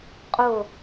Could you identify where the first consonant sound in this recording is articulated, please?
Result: uvular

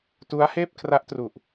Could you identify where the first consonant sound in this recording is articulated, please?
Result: alveolar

